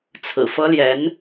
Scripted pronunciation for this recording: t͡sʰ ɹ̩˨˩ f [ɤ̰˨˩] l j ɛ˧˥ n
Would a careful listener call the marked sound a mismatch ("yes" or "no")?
yes